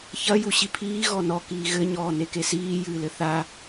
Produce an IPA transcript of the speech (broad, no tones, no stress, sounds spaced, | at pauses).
ç ɐ j u ɕ i pʰ iː ɣ ɔ n ɔ k iː ɣ ɘ ɲ ɔː n e k e s iː j ɨː l ɘ θ a